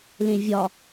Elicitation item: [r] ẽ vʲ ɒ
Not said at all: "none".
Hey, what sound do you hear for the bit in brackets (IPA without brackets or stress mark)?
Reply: l